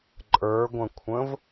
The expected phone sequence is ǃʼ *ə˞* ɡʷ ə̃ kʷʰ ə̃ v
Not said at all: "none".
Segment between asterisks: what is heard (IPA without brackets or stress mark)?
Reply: ə˞